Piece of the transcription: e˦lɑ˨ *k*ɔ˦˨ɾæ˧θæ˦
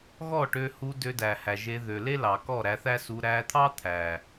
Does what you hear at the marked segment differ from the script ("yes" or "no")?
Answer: no